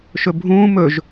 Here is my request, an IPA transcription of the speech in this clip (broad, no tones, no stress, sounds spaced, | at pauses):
ʃ ɵ bʱ ũː m ɵ ʒ